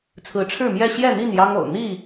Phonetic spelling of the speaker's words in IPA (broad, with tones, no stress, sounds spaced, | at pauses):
t͡sʰ ɹ̩˨˦ ʈ͡ʂʰ ɻ̩˥˨ m j ɛ˥˨ ɕ j ɛ˥˨ n̪ i˥˨ n j ɑ˦ ŋ o̰˨˩ ʊ̯ n̪ i˥˨